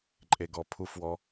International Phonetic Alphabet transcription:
ǃʼ e ɡ ɔ pʰ u f w ɔ

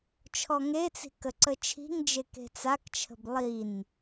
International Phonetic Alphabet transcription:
t͡ʃʰ ɔ ŋ e t͡s i̤ k ə ǀ ə t͡ʃʰ i̤ ŋ d͡ʒ e k e̤ t͡s a k t͡ʃʰ ə̤ b lˠ i n

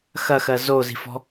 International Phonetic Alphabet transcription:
x ɐ x ɜ z o z i̤ f ɔ̤

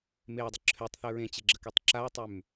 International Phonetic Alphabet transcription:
m e ɐ̯ dˤ ə ǁʰ ø tˤ θ œ ɹ ẽ t͡ɕ e ɡ͡ǁ ə k e tˤ ǁ a ɐ̯ tˤ ø m

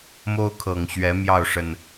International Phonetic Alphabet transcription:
m o˦ ʊ̯ kʰ ɤ˨˩ ŋ ɕ ɥ ɛ˨˦ m j ɑ˥˨ ʊ̯ ʂ ə˨˩ n

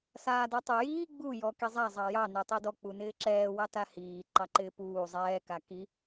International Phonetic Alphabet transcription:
s aː d ɔ tˤ u j iː ɡ͡b u j ɔ k i zˤ a zˤ ɑ j ɑ n e tˤ i d ɔ k͡p u n ɪː ǁ ɛː w ɑ t a h iː ǃ ɑ ǃ ɪː p uː zˤ ɛː k a k i

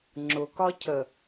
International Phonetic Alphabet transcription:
ŋ͡ǁ ʊ k ɒ cʰ ə

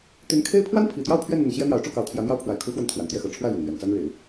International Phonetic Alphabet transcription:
t̪ y˧˥ n kʰ e˥ ɪ̯ pʰ w a˥ n pʰ i˨˩ t̪ j ɑ˥˧ ʊ̯ pʰ ɥ ɛ˥˩ n n̪ ə˨˩ n ɕ j ɛ˥ n̪ j ɑ˧˥ ʊ̯ ʈ͡ʂ u˥˩ k ɑ˧˥ ʊ̯ t̪ʰ j ä˧˥ n̪ j ɑ˥ ʊ̯ pʰ w a˨˩ ɪ̯ kʰ u˧˥ x w ə˧˥ n t̪ʰ w a˨˩ n t̪ j ɛ˥˩ x ɤ˨˩ ʈ͡ʂʰ w ä˥˩ l ɥ ɛ˩ n n̪ ɥ ɛ˨˩ n t͡s a˥ n ɻ e˨˩˦ ɪ̯

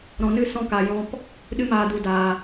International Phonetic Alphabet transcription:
ɾ ɔ̃˨ n ɨ˦˨ s ɔ̃˧ k a˨ j ɔ̃˧ p | ɗ ɨ˧ m aː˨ d u˨ d aː˨

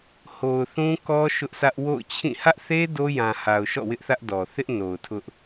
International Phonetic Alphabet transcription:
h o˨ ʊ̯ θ ũ˦ k ɔ˦ ʃ ʊ˦ ʔ s ä˦ ʔ w o̰˦˨ ʊ̯ t͡ɕʰ ĩ˦˨ h ä˦ ʔ θ e˦ d o˦ j ã˨ h a˨ ʊ̯ ʃ ɔ̰˦˨ w ɪ˦ ʔ θ ä˦ ʔ d ɔ˨ θ ɪ˦ ʔ n o˨ ʊ̯ tʰ ʊ˦ ʔ

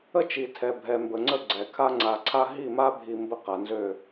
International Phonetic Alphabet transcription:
ə˦ t͡ʃ i˨ tʰ ɛ˨ bʱ ɛ˨ m b ə˨ ŋ͡ǀ ə˦˨ ɡ͡ǀ ɛ˨ kʰ a˦ ŋ͡ǀ a˨ ǀʰ a˦ ɦ i˦˨ m a˦ bʱ i˨ m b ə˦ q a˨ n z ø˦˨

